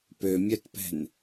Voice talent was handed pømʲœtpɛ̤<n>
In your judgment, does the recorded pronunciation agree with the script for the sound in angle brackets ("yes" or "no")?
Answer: yes